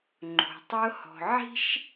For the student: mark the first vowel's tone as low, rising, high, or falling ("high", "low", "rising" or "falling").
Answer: low